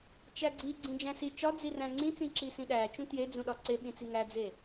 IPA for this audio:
t͡ʃ æ ɡ͡ǀ i ɡ͡ǀ ĩ d͡ʒ æ̃ s i t͡ʃ ɒ d͡z i r æ̃ ŋ͡ǀ ĩ t͡s ĩ ǁ i s ĩ ɗ æ t͡ʃ ũ t j e d͡z ũ ɗ ɒ ǀ e ɓ ĩ t͡s i ŋ æ d͡z e

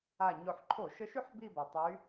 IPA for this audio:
a˨˩ ɲ o˨˩ ħ ǃʰ o˧˩˧ ʃ ə˧˥ ʃ y˥˧ ħ b i˥˧ b ʌ˨˩ tˤ y˧˥

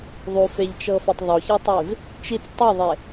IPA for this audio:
ðˤ u f e ʎ t͡ʃ ɤ f a tˤ ðˤ o ç a tˤ e v | t͡ʃ i t͡s tˤ o ðˤ e

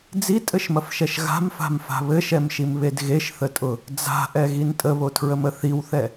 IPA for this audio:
d͡z i tʼ ɘ ʃ m ɐ f ʃ ɛ ʃ ɣ a̤ m f a̤ m f a̤ β ɘ ʃ ɛ m ʃ i m β e d ɣ e ʃ θ ə tʼ ʊ | d͡z a̤ ʔ ɛ ɣ i n tʼ ə β o tʰ ɹ ə m ə θ i w θ ɛ

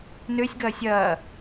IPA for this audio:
n ø sʲ ɡ ɐː sʲ ɐː

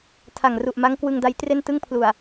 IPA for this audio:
tʰ a˨˩ ŋ r u˨˩ ʔ m a˦˥ ŋ k w ɯ˧ ŋ d a˦˥ j t r e˥˩ n t ɯ˥˩ ŋ pʰ l u˨˩ a̯

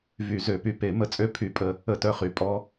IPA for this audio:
v y˨˩˦ z ø˨˩˦ p y˨ p e˨˩˦ m ə˧˥ t͡sʼ ø˦˨ pʰ y˧˥ pʼ ə˦˨ | ə˦˨ t œ˦˨ χ y˨˩˦ pʼ ɔ˧˥

